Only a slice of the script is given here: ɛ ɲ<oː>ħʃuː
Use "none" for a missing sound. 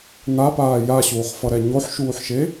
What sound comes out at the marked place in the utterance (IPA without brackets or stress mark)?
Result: o